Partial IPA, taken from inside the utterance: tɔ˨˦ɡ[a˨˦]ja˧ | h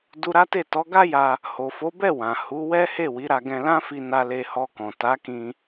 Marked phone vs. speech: incorrect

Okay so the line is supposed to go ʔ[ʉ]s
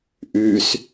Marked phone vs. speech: correct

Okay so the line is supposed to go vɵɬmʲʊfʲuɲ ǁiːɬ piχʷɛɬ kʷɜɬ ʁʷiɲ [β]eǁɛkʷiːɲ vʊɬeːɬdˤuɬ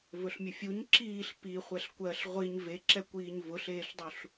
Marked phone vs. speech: incorrect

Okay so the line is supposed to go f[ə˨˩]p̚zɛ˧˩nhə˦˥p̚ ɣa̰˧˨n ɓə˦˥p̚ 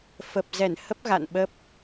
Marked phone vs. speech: correct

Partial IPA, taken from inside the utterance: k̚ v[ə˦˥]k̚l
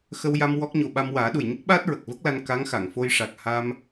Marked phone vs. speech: correct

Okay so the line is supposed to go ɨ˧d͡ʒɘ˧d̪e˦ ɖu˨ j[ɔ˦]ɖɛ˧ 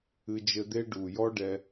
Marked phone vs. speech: correct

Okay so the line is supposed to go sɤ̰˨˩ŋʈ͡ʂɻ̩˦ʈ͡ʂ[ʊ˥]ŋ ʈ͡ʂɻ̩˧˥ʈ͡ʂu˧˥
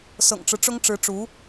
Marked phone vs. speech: correct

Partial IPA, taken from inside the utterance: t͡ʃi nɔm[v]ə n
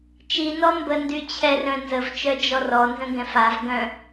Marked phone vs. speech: incorrect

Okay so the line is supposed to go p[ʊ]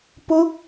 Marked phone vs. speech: correct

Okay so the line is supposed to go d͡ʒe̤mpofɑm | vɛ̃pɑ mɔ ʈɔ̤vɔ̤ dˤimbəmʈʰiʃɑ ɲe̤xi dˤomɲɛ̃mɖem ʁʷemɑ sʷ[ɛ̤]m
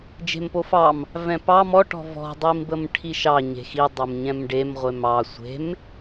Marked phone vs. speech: incorrect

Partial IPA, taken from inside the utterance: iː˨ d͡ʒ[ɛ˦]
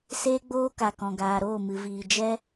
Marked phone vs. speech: correct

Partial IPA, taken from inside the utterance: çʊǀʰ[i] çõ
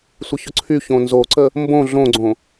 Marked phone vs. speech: incorrect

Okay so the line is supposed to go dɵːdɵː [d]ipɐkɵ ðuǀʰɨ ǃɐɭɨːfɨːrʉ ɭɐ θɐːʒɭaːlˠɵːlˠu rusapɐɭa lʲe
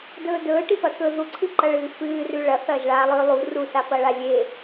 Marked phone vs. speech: incorrect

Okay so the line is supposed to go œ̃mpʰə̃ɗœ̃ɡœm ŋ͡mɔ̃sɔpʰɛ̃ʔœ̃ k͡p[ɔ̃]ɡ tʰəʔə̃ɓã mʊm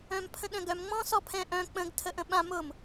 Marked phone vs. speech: incorrect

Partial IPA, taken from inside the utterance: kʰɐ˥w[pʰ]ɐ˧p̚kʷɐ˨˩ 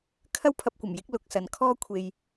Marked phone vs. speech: correct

